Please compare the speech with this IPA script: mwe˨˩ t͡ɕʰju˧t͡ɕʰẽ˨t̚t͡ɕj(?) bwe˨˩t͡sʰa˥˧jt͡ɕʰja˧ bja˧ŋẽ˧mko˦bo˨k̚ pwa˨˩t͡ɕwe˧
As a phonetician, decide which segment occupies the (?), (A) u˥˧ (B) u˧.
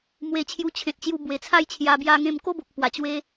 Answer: B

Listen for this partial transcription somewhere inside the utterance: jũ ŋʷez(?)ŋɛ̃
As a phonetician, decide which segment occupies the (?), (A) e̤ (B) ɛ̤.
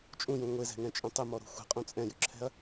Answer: B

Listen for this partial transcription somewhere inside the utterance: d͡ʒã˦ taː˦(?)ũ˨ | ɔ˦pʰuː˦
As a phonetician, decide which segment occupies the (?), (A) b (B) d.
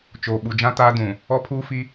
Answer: B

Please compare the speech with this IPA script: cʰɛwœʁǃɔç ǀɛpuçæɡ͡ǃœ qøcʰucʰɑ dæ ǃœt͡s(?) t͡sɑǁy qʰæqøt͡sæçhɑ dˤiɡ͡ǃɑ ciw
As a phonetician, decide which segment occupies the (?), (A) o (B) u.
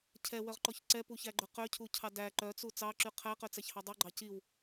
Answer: B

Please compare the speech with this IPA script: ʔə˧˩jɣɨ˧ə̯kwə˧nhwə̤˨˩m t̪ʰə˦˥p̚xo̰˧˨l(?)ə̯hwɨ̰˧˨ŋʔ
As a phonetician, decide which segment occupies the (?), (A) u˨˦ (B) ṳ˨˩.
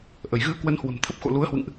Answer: A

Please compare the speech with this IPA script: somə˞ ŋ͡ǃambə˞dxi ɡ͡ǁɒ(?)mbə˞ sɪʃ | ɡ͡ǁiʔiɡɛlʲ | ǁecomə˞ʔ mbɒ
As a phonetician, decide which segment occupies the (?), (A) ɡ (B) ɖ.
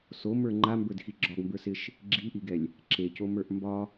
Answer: A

